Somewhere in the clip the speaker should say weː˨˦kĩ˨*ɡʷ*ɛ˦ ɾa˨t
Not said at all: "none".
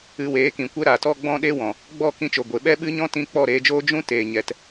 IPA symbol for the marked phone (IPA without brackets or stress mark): kʷ